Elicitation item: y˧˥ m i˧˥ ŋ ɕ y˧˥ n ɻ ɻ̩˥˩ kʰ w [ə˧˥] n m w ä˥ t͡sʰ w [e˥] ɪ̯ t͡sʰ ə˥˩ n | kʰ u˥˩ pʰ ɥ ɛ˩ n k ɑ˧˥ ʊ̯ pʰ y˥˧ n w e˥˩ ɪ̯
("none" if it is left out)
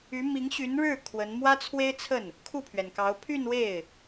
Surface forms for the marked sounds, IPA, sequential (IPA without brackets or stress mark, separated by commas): ə˧˥, e˥